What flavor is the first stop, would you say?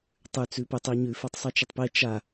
plain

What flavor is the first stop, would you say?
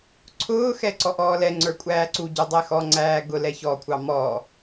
click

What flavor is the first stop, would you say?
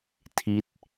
aspirated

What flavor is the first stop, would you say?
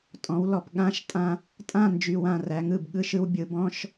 ejective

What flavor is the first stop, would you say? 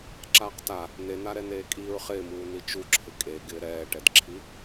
click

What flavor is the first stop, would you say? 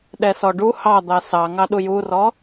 implosive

